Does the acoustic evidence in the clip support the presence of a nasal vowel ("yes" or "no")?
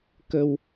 no